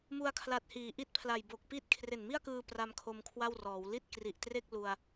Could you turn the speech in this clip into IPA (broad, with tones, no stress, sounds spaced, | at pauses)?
m u˧ a̯ kʰ l a˨˩ t̚ h iː˩˦ ʔ i˦˥ t̚ pʰ l a˨˩ j b o˨˩ k̚ p i˥˩ t̚ kʰ r e˨˩ n m i˥˩ a̯ k ɯː˧ p r a˦˥ m kʰ o˧ m kʰ w a˥˩ w r ɔː˩˦ w l i˥˩ t̚ k r i˨˩ ʔ t r e˥˩ k̚ l u˧ a̯